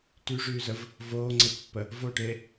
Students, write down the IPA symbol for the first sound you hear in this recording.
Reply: t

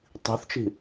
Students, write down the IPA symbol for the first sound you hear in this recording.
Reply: tˤ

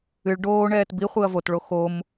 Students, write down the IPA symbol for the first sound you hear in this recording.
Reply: ɨ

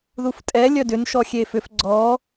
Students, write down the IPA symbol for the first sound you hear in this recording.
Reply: ð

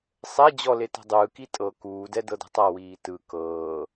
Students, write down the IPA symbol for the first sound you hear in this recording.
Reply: sˤ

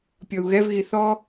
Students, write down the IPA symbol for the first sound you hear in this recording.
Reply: pʲ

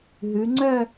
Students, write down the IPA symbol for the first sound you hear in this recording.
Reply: ɦ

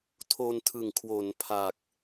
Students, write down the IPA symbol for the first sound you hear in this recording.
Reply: tʰ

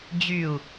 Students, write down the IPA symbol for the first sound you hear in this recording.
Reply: d͡ʑ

